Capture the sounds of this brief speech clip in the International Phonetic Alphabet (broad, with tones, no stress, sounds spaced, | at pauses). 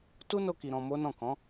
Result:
t u˦ n o˧ k i˧ ɾ ɔ̃˧ m o˦ n ɔ̃˦˨ k ɔ̃˨˦